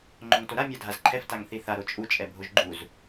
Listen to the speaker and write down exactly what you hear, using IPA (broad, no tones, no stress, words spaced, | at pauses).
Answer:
ŋ͡ǃoŋtoɾa mʲadʱazǃʰɛf taŋθiθa ɾot͡ʃʼu t͡ʃʼɛbʱoʒɡ͡ǃuz